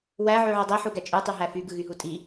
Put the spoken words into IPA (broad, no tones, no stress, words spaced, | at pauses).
wæ ʕyʕydˤi ħuɡæt͡ʃʼy tˤyɦæfy ɡɯɣyɦutʼi